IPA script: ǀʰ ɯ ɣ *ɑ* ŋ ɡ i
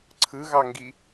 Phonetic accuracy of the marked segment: correct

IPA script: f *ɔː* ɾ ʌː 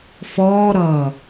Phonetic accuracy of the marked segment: correct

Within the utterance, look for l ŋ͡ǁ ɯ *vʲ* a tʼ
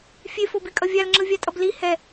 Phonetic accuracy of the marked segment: correct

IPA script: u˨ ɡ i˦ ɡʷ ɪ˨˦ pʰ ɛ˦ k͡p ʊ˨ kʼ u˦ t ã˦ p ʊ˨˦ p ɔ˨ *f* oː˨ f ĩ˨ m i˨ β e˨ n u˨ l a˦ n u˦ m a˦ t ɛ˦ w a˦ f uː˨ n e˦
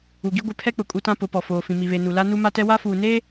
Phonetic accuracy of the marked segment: correct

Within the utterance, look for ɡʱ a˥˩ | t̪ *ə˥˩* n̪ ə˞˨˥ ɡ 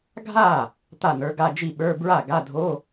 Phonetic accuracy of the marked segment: incorrect: a˥˩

